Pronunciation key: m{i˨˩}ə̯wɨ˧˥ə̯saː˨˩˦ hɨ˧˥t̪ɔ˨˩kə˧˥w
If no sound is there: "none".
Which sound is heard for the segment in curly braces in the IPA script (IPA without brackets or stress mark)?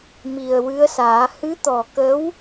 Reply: i˨˩